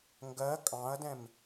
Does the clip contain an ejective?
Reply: yes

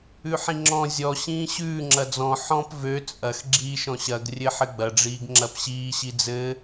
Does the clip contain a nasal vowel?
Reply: yes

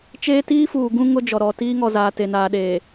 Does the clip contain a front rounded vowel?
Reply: no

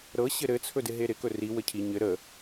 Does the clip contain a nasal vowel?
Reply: no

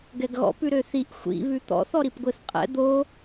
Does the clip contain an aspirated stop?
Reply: no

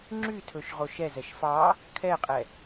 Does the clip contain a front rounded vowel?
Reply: yes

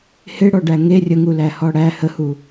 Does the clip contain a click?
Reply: no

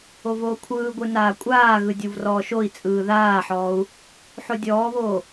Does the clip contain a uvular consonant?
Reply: no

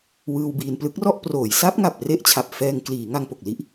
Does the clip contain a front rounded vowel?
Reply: no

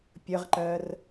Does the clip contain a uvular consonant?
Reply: yes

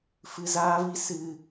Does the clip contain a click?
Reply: no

